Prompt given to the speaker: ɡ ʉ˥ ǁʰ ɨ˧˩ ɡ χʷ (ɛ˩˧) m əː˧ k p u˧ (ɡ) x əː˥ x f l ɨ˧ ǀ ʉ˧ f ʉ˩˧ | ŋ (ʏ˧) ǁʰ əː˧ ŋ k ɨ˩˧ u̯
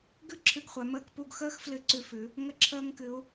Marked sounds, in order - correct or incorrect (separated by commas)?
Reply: correct, correct, incorrect